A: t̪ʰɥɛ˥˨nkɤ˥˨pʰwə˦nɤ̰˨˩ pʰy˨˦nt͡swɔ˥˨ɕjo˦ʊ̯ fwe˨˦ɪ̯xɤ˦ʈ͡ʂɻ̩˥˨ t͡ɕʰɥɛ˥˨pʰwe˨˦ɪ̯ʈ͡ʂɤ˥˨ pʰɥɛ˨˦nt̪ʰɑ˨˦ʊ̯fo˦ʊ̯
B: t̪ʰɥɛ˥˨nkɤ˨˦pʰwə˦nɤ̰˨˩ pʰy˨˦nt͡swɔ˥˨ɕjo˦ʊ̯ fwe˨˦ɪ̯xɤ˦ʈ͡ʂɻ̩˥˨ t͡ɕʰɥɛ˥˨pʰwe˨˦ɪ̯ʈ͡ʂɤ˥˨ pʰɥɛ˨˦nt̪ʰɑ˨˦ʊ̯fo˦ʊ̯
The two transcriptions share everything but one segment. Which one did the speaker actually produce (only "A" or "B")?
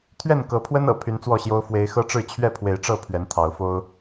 B